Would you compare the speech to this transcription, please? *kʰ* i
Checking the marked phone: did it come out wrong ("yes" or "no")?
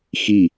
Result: yes